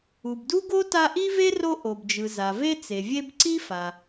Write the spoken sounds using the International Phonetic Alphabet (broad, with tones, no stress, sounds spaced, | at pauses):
u˩ b d u˥ ɡ o˥ t a˦ ʔ i˥ v e˥ r o˦ ʔ o˩ b d͡ʒ ɯ˩ z a˩ v e˦ t͡s e˩ vʲ e˦ b ǀ i˥ f a˩